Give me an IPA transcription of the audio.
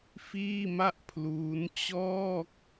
f iː˥˩ m a˥˩ ʔ pʰ l uː˦˥ n t͡ɕ ɔː˥˩ k̚

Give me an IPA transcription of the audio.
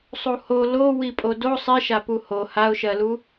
sˤ u h o l o w i pʼ o d o sˤ i ʃ a p u h o h a ʊ̯ ʃ ɜ l u

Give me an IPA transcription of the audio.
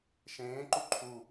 ʃ ẽː ǃ u ǃʰ u

